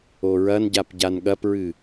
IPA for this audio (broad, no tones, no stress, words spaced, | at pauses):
oɹɐnɟap ɟanɠɐpɹɨ